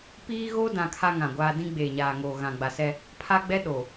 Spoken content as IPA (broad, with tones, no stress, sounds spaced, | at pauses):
p iː˦ ɣ oː˦ d ã˨ kʰ a˦ ŋ ã˨ ɡʷ aː˦ d ĩ˦ ɡ͡b eː˨ ɲ aː˨ ŋ oː˨ ɣ ã˨ ɡ͡b a˨ s ɛ˦ | pʰ a˦ ɡ͡b ɛ˦ ɗ o˨